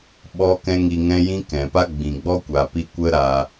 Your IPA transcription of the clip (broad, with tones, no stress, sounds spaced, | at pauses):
ɓ ɔ˦ k ɛ̃˦ ŋ i˧ ŋ ɛ̃˦ j ĩ˦ k ɛ̃˨ p a˦ ɡ͡b ĩ˨ ɡ͡b ɔ˦ kʷ a˨ p i˧ kʷ ə˦ ɾ a˧